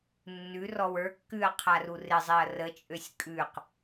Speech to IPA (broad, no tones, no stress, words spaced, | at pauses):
nːʉ rɔwə˞kːʉɐ̯ qʰarurɪzˤeɐ̯ rət͡ʃʼøsʲ kʼʉq